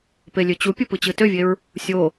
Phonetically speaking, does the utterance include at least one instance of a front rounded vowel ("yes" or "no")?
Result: yes